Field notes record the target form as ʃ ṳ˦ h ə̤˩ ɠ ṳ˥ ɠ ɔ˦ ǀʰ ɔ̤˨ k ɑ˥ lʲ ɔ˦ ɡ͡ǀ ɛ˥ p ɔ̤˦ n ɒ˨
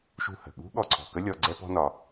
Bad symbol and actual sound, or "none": ɑ˥ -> ə˥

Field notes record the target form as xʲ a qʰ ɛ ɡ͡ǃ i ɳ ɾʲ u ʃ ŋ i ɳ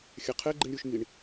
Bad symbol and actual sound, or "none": none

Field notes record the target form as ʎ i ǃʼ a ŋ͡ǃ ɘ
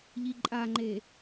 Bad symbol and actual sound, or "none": ɘ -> e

